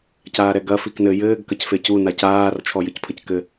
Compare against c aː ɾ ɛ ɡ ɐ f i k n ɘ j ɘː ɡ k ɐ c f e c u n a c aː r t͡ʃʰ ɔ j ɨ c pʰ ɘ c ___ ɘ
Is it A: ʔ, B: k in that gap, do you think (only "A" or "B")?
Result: B